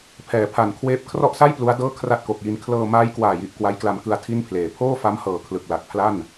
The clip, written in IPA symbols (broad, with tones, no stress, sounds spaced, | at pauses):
pʰ ɛː˩˦ pʰ a˨˩ n kʰ w eː˦˥ p̚ kʰ r ɔ˥˩ ʔ s a˥˩ j p l u˦˥ a̯ d ɤː˥˩ kʰ r a˥˩ t̚ k o˨˩ k̚ j i˧ n kʰ l ɤː˧ m aː˦˥ j k w aː˨˩ j i˨˩ ʔ k w a˦˥ j k l a˧ m k ɯ˧ a̯ tʰ i˥˩ n pʰ l eː˩˦ pʰ oː˥˩ f a˦˥ m h ɤː˨˩ kʰ l ɯ˨˩ k̚ l a˨˩ t̚ pʰ l a˥˩ n